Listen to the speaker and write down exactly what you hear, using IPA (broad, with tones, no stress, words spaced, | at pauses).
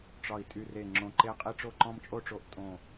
ʈ͡ʂɒ˨˩i̯ tʼy˨˩re˨˩ŋ͡ǁõ˨˩ ǃe˧qʼi˧ ʈ͡ʂo˧ǃɔ̃˧mt͡ʃʼo˧ʈ͡ʂo˨˩ʔ tʼõ˨˩